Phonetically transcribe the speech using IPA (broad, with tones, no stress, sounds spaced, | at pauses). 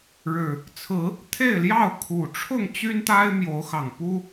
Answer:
ɻ ɻ̩˨˩ | t͡sʰ ɹ̩˨˦ | t̪ʰ e˥˨ ɪ̯ l j ɑ˥˨ ʊ̯ kʰ u˨˩ ʈ͡ʂʰ ʊ˥˨ ŋ t͡ɕ y˦ n t̪ a˦ ɪ̯ m j o˨˦ ʊ̯ x ɑ˨˩ ŋ p u˦